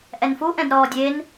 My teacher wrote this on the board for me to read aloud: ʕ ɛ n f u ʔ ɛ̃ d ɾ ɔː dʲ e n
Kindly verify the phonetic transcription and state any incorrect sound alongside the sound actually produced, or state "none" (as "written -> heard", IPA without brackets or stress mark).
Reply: ʕ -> ʔ